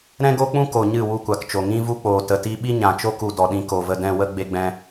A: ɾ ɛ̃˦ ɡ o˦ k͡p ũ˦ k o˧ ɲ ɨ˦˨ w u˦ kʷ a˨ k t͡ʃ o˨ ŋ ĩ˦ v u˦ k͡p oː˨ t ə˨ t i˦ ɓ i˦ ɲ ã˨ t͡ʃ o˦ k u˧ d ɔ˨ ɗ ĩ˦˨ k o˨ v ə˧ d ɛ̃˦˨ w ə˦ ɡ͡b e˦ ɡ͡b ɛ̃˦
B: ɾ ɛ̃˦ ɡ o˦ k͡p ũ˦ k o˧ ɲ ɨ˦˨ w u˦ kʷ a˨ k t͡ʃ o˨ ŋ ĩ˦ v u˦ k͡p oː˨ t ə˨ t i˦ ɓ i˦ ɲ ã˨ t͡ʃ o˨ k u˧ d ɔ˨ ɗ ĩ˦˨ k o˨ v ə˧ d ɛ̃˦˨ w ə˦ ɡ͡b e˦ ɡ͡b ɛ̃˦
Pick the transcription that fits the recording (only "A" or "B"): A